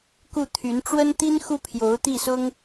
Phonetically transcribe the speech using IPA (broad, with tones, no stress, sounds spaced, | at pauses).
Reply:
k u˥˩ t̪ʰ y˧˥ n ʈ͡ʂ w ə˥ n t̪ i˥ n x u˥ pʰ j o˧˥ ʊ̯ t̪ i˥˩ s ʊ˥ ŋ